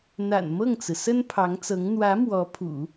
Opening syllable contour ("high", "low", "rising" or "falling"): low